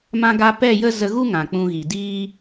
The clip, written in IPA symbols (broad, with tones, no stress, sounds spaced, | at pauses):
m ã˧ ɡ a˧ p ɛ˦˨ j ə˦ z ə˧ ɣ u˦ ŋ ã˨ k͡p ũ˧ ɣ i˨ d iː˦